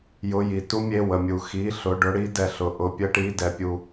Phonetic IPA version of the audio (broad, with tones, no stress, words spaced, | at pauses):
jʊ˧˥˧ji˧ tu˥mʲe˧˥˧wə˧ mʲu˧ xi˧˥˧ɬʊ˧˥˧ɖʊ˥ɽi˥ dɛ˧ɬʊ˧ ʔʊ˧˥˧pʲə˥ʈi˧˥˧ dɛ˧pʲu˧